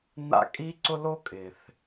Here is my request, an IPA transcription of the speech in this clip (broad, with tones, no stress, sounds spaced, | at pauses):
n̪ a̰˥ kʼ i˥ ǀ ʊ˥ l o˥ kʼ ɪ˩ θ